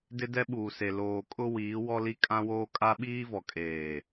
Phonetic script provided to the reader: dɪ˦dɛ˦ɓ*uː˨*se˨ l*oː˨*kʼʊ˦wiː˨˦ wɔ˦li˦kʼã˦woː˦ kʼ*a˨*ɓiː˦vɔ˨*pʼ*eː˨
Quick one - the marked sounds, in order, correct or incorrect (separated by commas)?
correct, correct, incorrect, incorrect